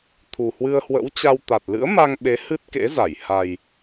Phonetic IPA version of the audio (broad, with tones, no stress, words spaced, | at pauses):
t̪ʰu˨˩hwɨ˧ə̯hwə̰˧˥wt͡ɕa˧w t̪a˨˩t̚lɨ̰˧˥ə̯ma˧ŋɓe˨˦ hɨ˦˥t̚kḛ˧˥za˧˩j ha˨˩j